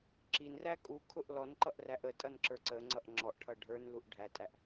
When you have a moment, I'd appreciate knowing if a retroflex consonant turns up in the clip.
yes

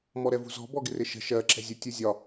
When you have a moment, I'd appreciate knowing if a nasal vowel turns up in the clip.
no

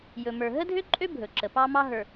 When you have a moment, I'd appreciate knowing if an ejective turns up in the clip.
yes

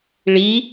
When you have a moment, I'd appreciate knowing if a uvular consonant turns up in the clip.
no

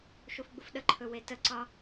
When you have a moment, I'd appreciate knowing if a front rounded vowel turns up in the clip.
no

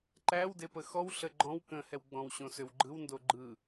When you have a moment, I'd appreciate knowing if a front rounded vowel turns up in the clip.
yes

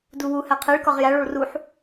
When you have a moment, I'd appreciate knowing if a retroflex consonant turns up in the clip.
yes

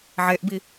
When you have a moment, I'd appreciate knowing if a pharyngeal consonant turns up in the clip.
yes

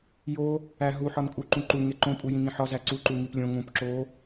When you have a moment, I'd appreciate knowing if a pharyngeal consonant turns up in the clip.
yes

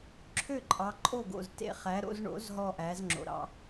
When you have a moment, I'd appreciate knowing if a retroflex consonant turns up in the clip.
yes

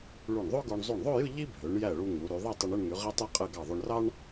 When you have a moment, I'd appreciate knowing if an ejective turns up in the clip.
yes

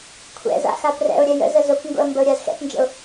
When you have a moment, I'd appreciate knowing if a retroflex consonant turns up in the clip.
no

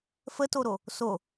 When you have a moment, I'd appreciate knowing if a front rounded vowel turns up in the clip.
no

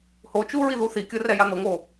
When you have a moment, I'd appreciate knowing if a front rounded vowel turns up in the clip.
no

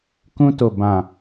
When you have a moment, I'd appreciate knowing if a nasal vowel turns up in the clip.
yes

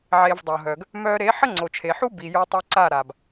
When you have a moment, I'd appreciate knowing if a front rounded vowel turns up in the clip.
yes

